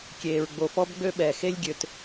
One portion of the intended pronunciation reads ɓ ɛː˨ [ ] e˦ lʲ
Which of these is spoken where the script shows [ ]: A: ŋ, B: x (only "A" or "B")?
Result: B